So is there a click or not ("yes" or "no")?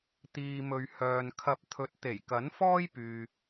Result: no